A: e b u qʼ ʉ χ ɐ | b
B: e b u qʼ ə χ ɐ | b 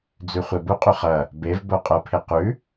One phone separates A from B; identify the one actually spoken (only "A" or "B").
A